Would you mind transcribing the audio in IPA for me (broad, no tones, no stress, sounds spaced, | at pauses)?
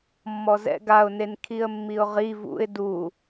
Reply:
mː ɔ z ɛ̰ ɡ a ʊ̯ n e n kʰ i ə̯ mː i ʊ̯ ʁ i v ṵ ɪ̯ d u